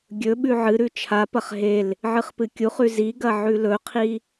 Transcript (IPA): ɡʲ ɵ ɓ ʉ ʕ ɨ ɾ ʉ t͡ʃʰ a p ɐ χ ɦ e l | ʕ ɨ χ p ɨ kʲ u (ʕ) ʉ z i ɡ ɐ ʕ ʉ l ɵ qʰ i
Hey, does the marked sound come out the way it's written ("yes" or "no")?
no